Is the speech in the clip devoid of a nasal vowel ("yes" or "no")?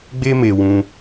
no